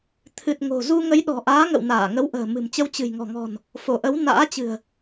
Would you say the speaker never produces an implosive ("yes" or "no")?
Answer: no